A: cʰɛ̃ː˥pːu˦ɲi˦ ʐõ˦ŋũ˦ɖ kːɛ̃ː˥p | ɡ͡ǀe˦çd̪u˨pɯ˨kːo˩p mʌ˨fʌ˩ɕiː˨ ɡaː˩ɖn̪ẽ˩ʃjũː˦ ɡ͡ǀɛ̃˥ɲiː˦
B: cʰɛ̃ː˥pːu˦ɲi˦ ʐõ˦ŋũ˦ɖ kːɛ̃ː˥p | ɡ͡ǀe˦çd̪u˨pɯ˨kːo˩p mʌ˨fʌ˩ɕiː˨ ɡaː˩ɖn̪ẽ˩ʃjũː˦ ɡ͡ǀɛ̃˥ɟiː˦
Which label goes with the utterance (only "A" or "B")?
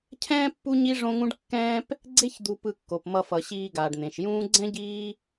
B